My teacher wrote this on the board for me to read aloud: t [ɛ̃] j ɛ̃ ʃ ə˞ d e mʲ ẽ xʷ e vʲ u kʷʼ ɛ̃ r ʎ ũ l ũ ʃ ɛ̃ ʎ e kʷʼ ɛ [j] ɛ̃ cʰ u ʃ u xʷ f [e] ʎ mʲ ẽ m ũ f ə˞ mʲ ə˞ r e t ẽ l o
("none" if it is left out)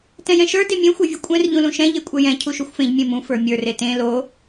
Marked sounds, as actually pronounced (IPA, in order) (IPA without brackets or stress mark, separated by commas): ɛ̃, j, ẽ